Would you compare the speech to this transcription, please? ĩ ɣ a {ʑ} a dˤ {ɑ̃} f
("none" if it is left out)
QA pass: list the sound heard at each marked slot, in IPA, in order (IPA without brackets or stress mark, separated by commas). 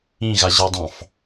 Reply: ʑ, ɑ̃